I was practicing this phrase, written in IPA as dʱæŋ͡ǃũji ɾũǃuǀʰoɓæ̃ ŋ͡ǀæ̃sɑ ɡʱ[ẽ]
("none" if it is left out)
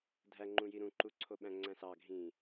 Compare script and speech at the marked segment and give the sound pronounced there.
ĩ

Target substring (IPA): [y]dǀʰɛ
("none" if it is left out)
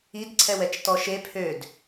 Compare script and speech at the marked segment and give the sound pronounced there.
i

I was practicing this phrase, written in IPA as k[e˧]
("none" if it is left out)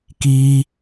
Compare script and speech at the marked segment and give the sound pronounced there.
i˧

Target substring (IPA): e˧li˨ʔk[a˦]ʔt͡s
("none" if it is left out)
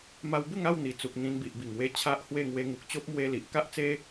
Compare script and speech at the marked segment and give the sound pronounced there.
a˦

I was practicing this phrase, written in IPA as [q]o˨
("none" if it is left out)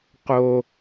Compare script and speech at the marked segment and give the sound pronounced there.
q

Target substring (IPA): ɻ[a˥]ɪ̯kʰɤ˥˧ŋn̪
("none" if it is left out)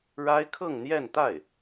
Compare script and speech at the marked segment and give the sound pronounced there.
a˥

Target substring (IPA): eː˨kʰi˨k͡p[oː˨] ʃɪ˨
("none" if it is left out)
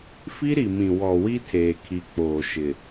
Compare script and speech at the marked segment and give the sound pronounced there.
oː˨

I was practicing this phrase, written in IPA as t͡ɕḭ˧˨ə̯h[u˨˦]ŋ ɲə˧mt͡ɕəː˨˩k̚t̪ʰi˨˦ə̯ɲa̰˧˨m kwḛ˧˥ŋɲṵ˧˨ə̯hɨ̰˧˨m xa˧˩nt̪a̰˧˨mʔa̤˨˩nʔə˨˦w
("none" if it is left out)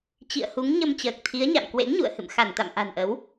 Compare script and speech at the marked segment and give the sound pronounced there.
u˨˦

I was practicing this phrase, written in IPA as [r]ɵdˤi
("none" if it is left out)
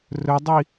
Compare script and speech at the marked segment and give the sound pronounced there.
r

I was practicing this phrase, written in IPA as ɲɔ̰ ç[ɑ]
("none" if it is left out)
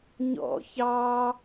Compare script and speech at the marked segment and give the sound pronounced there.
ɑ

